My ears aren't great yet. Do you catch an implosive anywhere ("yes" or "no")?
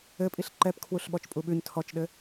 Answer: yes